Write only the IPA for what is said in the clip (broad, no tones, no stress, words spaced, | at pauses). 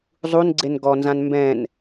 zˤunɡ͡ǀen ɡɔnzãn mbɛ̃n